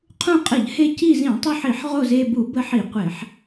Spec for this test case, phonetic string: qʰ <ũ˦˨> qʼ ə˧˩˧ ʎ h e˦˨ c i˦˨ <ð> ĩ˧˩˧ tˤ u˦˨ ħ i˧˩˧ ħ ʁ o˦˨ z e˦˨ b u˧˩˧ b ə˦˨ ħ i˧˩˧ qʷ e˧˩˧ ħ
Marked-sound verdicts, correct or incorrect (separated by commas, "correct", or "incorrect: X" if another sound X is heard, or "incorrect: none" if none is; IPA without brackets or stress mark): correct, incorrect: z